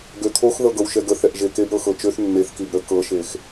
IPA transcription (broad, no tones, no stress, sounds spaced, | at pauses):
ɡ ø t̪ʰ o x ð ɤ ɡ ɤ w ʃ ɛ ɡ ə θ ɛ ʔ ʒ e k e b ɾ ɤ x ɤ t͡ʃ ø θ nː e θ k i b ɾ ə k ɤ ʃ e x